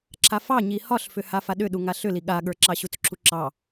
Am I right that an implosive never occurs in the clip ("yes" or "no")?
no